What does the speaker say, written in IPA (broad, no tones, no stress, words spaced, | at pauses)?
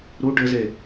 ɾu ɖɘze